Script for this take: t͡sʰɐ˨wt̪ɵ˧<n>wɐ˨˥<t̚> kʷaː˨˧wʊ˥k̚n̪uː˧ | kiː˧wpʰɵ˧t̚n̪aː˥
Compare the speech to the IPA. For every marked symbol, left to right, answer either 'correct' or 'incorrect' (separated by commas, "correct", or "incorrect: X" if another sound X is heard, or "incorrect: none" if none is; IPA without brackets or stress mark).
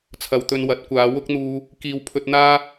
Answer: correct, correct